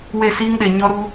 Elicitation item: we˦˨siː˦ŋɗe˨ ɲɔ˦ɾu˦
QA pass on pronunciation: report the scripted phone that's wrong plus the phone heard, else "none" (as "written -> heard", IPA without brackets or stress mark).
none